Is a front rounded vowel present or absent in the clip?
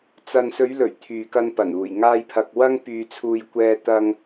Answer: present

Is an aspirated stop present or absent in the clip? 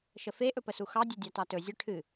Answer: present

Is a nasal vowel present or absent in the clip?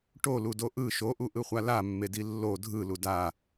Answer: absent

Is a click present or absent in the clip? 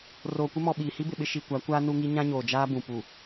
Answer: absent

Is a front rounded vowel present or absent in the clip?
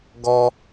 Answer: absent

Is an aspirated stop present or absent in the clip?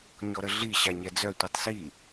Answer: absent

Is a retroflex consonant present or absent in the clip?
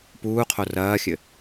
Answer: absent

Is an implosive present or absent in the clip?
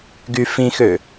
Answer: absent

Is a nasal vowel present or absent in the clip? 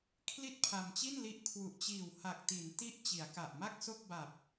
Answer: absent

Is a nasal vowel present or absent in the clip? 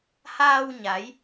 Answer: absent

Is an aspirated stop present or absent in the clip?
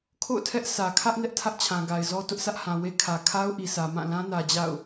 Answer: present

